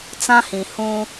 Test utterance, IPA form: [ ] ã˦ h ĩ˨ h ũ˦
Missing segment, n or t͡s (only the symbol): t͡s